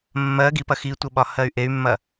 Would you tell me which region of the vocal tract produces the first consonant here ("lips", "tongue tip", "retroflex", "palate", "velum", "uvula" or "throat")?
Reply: lips